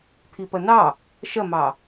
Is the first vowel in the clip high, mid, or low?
high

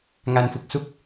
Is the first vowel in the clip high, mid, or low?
low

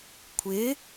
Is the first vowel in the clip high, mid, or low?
high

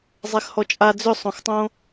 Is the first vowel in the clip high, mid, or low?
mid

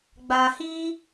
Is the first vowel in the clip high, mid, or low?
low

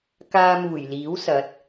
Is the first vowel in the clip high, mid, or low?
low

